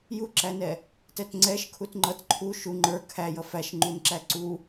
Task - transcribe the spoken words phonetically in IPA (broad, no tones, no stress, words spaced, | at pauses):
juǁænɛ | tɛtŋ͡ǀɛʃ kʰutŋ͡ǃʌt ǃʰu ʃu ŋ͡ǃə˞ kʰæjʌ fæʃŋ͡ǃunǁæ ǀu